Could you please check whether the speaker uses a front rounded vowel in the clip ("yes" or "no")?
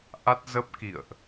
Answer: no